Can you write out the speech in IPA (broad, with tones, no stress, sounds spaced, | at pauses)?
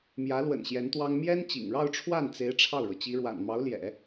m j ä˧˥ l w ə̰˨˩ n ɕ j ɛ˧˥ n t̪ w ɑ˥ ŋ m j ɛ˥ n t͡ɕ ḭ˨˩ ŋ ɻ ɑ˥˧ ʊ̯ ʈ͡ʂʰ w a˥˩ n t͡s e˧˥ ɪ̯ ʈ͡ʂʰ ɑ˥˩ ʊ̯ ɻ ɤ˩ t͡ɕ i˧˥ ɻ w a̰˨˩ n m ɑ˧˥ ʊ̯ l j ɛ̰˨˩˦